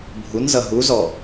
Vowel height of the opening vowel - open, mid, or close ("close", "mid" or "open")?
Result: close